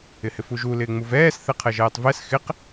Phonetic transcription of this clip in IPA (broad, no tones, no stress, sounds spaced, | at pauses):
ɪ h ɪ f u ʒ u l ɪː ŋ͡m u v ɛː s θ ɛ qʰ ɛ ʒ ɛː tˤ v ɛ s x ɪ q